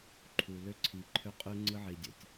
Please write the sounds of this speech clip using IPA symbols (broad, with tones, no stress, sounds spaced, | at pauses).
ǃʰ u˨ l ø˧ ǀʰ i˨ ǃʰ ø˧ qʼ y˧ ŋ͡ǀ ɯ˧ ʕ i˨ dʲ o̰˨ tʲ